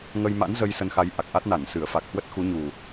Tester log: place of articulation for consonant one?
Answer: velar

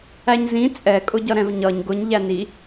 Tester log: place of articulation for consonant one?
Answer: palatal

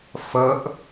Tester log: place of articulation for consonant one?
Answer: labial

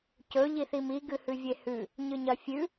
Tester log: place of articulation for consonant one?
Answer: palatal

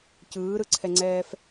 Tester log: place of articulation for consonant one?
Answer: palatal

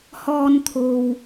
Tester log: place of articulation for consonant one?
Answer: glottal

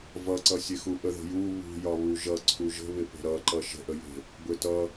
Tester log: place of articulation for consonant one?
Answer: labial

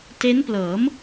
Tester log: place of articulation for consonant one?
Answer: alveolar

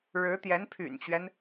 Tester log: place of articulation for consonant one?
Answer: retroflex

